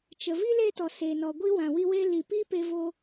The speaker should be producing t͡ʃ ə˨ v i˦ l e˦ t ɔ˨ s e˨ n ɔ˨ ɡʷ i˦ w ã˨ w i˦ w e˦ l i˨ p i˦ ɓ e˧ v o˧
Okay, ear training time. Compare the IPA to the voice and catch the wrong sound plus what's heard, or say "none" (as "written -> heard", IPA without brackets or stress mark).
ɓ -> p